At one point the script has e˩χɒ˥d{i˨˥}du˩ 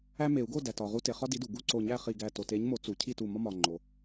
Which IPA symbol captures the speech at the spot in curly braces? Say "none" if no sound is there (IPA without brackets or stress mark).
i˨˥